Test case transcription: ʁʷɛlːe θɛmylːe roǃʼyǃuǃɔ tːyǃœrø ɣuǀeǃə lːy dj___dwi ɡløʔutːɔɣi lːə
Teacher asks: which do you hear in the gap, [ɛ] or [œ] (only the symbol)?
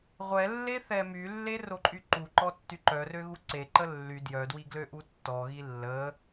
œ